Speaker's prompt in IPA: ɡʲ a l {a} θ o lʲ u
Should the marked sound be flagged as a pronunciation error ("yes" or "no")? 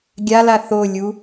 no